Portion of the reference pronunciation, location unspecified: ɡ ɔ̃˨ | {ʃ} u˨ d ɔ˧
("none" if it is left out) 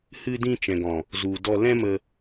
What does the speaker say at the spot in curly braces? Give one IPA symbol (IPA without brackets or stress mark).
z